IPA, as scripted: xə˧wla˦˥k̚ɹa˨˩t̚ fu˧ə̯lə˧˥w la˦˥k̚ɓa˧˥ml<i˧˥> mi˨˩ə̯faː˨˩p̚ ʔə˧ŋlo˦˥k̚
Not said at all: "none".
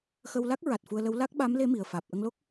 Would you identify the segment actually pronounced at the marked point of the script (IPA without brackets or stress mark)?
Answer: e˧˥